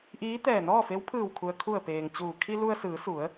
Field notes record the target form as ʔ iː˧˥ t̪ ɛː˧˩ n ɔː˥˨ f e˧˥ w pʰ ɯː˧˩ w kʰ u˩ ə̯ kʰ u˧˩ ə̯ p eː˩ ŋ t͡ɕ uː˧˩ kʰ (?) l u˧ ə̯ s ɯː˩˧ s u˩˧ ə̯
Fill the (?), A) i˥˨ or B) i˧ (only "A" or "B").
B